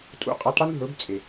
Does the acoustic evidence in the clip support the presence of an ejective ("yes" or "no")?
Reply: yes